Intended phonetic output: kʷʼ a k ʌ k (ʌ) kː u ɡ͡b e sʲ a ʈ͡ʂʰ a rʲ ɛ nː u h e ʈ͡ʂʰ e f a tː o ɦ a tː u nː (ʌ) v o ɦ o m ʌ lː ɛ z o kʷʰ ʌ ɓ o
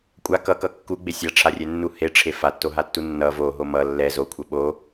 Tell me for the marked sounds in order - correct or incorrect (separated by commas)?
correct, correct